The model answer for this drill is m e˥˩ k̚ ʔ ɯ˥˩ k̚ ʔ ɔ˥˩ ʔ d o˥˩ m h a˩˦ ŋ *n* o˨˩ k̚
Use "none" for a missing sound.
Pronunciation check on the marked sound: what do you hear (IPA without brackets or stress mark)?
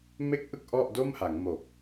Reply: m